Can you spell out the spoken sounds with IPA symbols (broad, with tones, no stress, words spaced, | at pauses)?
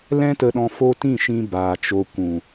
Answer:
lɛ̃˦tə˧ɗɔ̃˧ fo˦ tĩ˦˨ʃĩ˧ baː˨t͡ʃo˧ kʷũ˨